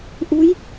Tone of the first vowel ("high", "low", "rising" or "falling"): rising